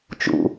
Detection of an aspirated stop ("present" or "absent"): absent